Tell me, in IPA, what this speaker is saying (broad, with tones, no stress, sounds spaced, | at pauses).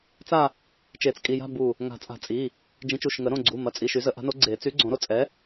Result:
t͡s a˥˧ | t͡ʃ e˨˩˦ t͡s kʼ i˩˧˩ j a̤˥˧ b u˧˩ | ŋ a̤˨˩˦ t͡sʼ a̤˨˩˦ t͡sʼ i˩˧˩ | d͡ʒ ĩ˨˥ t͡ʃ u˩˧˩ ʃ ŋ ə˨˩˦ ɾ õ˩˧˩ ɡ͡ǀ u˩˧˩ m ɐ˩˧˩ t͡sʼ i˩˧˩ ʃ y˨˩˦ z ə˨˩˦ ʔ a̤˨˥ n o˨˥ ɡ͡ǀ e˨˩˦ t͡s y˨˥ ɡ͡ǀ õ˨˩˦ ɾ o˧˩ t͡sʼ ɛ˨˥